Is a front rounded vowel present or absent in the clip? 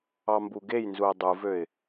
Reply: present